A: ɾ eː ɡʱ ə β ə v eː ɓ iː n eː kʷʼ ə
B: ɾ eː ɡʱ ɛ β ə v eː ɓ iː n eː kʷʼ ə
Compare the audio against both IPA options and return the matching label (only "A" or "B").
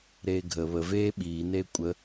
A